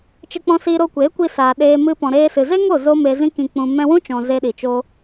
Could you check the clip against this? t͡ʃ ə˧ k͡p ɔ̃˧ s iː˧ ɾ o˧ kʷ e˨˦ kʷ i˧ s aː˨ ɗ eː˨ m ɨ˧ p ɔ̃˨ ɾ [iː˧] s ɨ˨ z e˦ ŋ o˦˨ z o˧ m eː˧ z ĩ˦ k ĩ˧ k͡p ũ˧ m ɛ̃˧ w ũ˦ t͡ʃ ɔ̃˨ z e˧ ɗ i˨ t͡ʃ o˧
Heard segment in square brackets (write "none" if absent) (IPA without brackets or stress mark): eː˧